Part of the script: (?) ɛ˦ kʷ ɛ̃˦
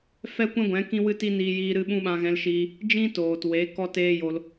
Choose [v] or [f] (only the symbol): f